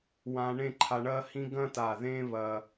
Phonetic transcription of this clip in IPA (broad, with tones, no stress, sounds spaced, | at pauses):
w ã˧ ɳ ẽ˥˧ ǃʰ a˧ ɳ ɐ˥ h ĩ˥ ɡ ɐ̃˥ t a˧˩ ð ẽ˥ β ɐ˧